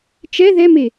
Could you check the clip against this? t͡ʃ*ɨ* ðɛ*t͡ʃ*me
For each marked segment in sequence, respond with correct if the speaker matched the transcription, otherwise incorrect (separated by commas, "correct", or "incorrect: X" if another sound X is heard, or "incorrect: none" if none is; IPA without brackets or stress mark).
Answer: incorrect: ɛ, incorrect: none